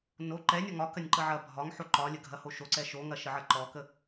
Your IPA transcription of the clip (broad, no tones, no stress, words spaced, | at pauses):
no ǃɛnʲɔ ŋɒkɐnʲ ǃəʕɐbʱɒŋħo ǃɒlʲə ɡʱɐhoʃoǀɛ ʃoŋɐ ʃəʕɐǃɔkə